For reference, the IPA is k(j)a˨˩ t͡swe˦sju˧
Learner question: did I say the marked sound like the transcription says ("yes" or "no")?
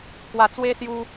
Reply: no